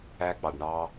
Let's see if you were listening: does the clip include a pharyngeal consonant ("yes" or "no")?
no